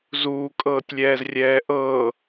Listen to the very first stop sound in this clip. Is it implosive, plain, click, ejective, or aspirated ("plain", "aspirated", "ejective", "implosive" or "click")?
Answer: ejective